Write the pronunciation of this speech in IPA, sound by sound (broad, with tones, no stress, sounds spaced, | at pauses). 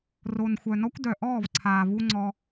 r o˨ n xʷ œ˨ n ɔ˦ kʷ d œ˨ ʔ ɔː˦˨ v ǀʰ aː˨ v u˧ ŋ͡ǀ ɔ˧